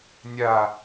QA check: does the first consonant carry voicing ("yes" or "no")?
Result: yes